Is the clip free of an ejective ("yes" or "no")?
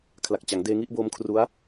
yes